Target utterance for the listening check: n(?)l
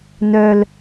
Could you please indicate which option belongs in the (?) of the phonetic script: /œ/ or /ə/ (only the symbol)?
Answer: œ